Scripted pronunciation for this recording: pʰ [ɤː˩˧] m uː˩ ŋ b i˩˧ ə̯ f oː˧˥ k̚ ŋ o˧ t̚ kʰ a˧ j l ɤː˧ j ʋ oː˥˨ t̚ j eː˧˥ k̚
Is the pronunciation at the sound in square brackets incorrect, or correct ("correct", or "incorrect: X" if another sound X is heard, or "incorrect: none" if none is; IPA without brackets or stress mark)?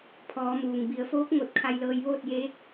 incorrect: ɔː˩˧